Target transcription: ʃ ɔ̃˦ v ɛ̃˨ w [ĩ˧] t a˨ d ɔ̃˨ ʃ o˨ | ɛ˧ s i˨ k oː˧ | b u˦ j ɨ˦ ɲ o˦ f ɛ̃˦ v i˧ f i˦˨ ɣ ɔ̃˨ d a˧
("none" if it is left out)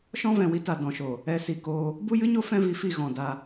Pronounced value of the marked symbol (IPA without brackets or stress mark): i˧